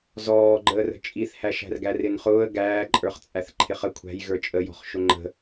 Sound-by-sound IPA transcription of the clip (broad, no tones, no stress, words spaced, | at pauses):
zɔːɡ͡ǃəːrə̤ t͡ʃʼiθhæʃæ̤rɡæ rɪnχʊːə̯ ɡæːǃʼə˞χt͡sʼæθ ǃʰɪχə kʷʰæ̤j ɣə˞t͡ʃʼəjɔ̤χ ʃʊŋ͡ǃə̤